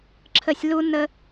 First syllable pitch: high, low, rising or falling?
falling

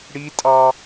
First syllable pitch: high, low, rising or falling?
high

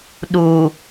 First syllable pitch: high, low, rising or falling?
low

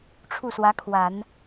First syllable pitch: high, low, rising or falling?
falling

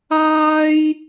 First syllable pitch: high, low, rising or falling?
high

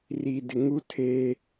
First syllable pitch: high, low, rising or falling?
low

